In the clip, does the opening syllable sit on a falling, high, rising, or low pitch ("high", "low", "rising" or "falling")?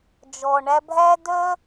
low